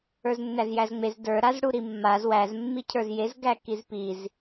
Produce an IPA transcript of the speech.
ə˞ z nː æ z j æ z ŋ͡m e z d ə˞ ɾ a z ɽ u ɾ i mː a z w æ z mː i cʰ ə˞ z j e z ɡ æ k i z p i z

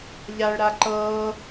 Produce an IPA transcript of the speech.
ʎ a ɭ ɾ a ǃ ɤː

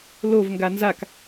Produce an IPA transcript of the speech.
l o v ŋ ɡ a n z a k

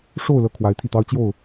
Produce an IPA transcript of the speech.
ʂ o˥˧ ʊ̯ l ɤ˥˩ kʰ w a˧˥ ɪ̯ t̪ʰ i˥˩ t̪ ɑ˥ ʊ̯ t͡ɕ j o˥˩ ʊ̯

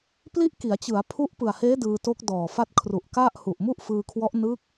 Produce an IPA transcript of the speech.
p l i˥˩ ʔ k i˩˦ a̯ t͡ɕ ɯ˩˦ a̯ pʰ u˦˥ ʔ p ɯ˨˩ a̯ h eː˦˥ d ɯː˧ t o˦˥ k̚ d ɔː˨˩ f a˥˩ t̚ kʰ r u˨˩ ʔ k a˥˩ ʔ h u˨˩ ʔ m u˥˩ ʔ f ɯː˧ kʰ w ɔ˦˥ ʔ n ɯ˦˥ k̚

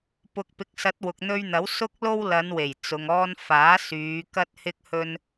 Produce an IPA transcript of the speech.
p ʊ˨ k̚ p ɪ˨ k̚ s ɐ˨˥ t̚ w ʊ˨ k̚ n̪ ɵ˧ ɥ n̪ ɐ˨˥ w s ʊ˥ k̚ l o˥ w l ɐ˨˧ n w e˨˩ j t͡s ʊ˨ ŋ ɔː˧ n f aː˨˥ s yː˨˧ k ɐ˥ t̚ h ɪ˥ k̚ h ɵ˥ n

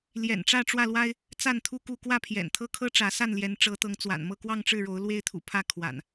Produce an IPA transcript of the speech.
l j ɛ̰˨˩ n ʈ͡ʂ ä˥˨ ʈ͡ʂ w ä˥˨ l w a˦ ɪ̯ | t͡s a˥˨ n t̪ʰ u˥˨ k u˥˨ k w ä˥˨ pʰ j ɛ̰˨˩ n t̪ʰ ɤ˦ kʰ ɤ˦ ʈ͡ʂ ä˨˦ s a˥˨ n l j ɛ˨˦ n ʈ͡ʂ ɤ˨˦ t̪ ɤ˨˦ ŋ t͡s w a̰˨˩ n m ɤ˥˨ k w ɑ˥˨ ŋ ʈ͡ʂ ɻ̩˥˨ ɻ o˨˦ ʊ̯ l w e˦ ɪ̯ t̪ʰ ṵ˨˩ pʰ ä˥˨ kʰ w a̰˨˩ n

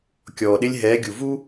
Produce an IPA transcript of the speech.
kʲ ɔː˨ ɗ ɪ˦ lʲ ɦ ɛː˨˦ ɡʲ u˨ v u˦

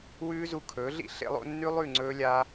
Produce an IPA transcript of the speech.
w ʉː˦ z u˧ kʰ ɵː˨˦ ɮ ḭ˦ ɬ ḛ˧ lˠ o̰˧ nː ʉ˦ lˠ ʉ˦˨ ŋ͡ǀ ɵː˧ lʲ a˧

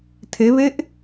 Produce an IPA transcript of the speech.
tʰ e β e ʔ

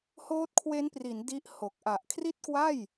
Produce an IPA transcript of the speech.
h oː˦˥ t̚ kʰ w e˦˥ n p r i˩˦ n d i˦˥ ʔ h o˨˩ k̚ ʔ a˨˩ ʔ kʰ r i˥˩ t̚ k w a˥˩ j

